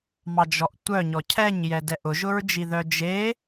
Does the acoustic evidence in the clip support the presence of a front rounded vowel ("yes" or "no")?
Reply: yes